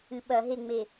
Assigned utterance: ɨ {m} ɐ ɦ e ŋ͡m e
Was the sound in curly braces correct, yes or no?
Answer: no